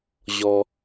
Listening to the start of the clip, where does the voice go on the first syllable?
high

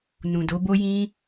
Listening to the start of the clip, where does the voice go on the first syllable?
low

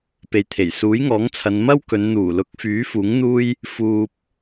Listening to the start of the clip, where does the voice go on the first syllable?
low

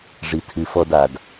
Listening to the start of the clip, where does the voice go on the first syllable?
low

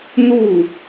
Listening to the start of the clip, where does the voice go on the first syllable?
falling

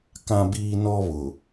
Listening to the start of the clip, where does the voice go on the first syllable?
high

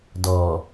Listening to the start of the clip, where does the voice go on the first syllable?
low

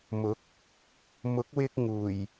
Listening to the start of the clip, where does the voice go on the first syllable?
rising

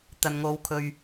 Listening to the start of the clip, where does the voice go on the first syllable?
low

